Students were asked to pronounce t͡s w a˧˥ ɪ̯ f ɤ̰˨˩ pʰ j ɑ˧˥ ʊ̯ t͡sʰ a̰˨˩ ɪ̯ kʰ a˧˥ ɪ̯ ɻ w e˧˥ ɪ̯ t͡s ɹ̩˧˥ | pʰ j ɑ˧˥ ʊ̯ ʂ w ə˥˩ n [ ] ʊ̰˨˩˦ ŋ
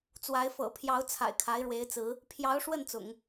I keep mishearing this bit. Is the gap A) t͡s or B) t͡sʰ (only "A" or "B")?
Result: A